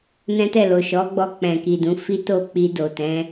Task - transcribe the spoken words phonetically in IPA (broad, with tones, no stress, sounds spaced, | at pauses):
n ɛ̃˦ t ɛ˦˨ l o˨ ʃ ɔ˨˦ ɡ͡b ɔ˧ k͡p ɛ̃˨ k i˨ d ũ˨˦ f i˦ t o˦˨ k͡p i˧ d o˨ t ɛ̃˨˦